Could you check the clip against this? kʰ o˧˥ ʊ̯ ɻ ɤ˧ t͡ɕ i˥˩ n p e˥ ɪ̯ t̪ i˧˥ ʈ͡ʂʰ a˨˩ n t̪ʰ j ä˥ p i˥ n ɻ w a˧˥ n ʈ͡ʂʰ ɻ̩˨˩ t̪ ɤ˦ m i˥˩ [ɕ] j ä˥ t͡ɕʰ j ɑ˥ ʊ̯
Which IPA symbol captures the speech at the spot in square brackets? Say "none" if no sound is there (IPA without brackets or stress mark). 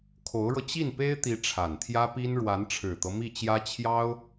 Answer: t͡ɕ